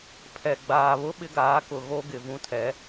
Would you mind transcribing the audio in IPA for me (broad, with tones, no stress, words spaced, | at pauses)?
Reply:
pʰɛ˨ ɡ͡baː˨βʊ˦ ɓɪ˦ɡaː˨˦kʊ˨ ɣo˦ ɡɪ˨vũ˦ tʰɛ˨˦